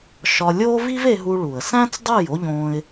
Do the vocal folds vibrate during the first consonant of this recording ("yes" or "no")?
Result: no